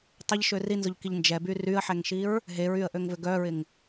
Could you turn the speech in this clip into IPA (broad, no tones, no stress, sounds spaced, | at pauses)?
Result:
tˤ ɪ ʎ ʃ ø r i n z ʊ ʎ k i ʎ n d͡ʒ ɛ b y r y ə̯ ħ ɛ ŋ ʃ i ɹ | ɦ e ɹ y ə̯ ʔ ø ŋ v ʏ ɡ œ ɹ ɪ ŋ